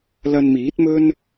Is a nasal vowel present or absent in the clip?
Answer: absent